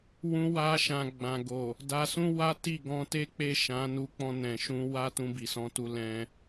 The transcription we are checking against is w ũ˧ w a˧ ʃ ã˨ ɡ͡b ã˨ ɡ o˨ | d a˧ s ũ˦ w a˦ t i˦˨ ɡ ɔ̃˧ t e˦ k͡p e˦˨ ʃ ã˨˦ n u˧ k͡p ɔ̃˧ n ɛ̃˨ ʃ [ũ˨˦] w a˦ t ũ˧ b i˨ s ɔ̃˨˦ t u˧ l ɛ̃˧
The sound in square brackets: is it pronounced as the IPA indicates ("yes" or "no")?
no